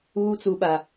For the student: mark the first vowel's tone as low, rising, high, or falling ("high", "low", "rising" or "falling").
high